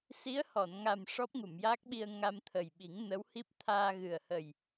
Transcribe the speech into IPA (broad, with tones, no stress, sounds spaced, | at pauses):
s i˧˥ ə̯ h ɔ˨˩˨ n ŋ a˨˩ m ʂ ɔ˦˥ p̚ ŋ u˨˩˨ m j aː˦˥ k̚ ɓ i˧ ə̯ ŋ a˧ m t̪ʰ ə˨˩ j ɓ i˨˩˦ ŋ n ə˧˥ w h i˦˥ p̚ t̪ʰ aː˧ ɣ ɨ˨˩ ə̯ h ə˨˩ j